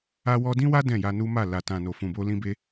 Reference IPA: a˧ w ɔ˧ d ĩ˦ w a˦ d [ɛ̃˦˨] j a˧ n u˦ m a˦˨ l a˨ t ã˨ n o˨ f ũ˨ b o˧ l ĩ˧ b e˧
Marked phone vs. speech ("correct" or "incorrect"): correct